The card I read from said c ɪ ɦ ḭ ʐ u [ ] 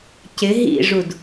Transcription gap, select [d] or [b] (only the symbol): d